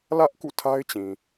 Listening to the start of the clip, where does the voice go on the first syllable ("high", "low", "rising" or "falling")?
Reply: high